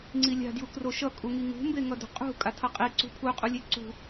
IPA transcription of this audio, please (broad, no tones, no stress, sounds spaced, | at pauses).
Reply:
ŋ͡ǀ i lʲ a̤ d j u k r o ʃ ʌ kʼ u ŋ i ŋ ṳ m b e ŋ ʌ d ṳ qʼ ṳ kʼ a tʰ ʌ qʼ i ǀ ṳ pʰ u qʼ u lʲ e ǀ ṳ